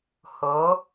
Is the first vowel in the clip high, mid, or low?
mid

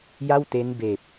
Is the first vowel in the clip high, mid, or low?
low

